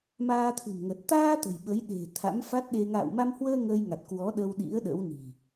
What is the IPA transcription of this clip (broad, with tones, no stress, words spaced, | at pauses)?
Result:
maː˧t̪ʰɨ̤˨˩mŋə˨˩t̚ t̪aː˧ t̪ə̤˨˩jɓə˨˦jɗe̤˨˩ t̪ʰa̰˧˥mfa˦˥t̚ɗe˧ ŋa̰ː˧˨wma˧mhwəː˧ ŋəː˧jŋa˨˩t̚kwɔ˨˦ ɗə˧wɗḭ˧˥ə̯ ɗə̰˧˥wni̤˨˩